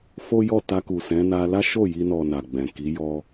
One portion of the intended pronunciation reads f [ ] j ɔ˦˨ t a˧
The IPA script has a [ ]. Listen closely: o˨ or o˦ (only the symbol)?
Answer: o˦